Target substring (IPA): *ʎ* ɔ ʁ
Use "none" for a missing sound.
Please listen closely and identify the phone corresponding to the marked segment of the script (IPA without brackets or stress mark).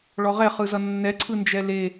ɭ